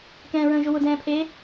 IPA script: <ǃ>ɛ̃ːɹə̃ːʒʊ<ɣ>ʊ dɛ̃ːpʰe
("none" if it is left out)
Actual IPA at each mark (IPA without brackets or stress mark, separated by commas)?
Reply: k, w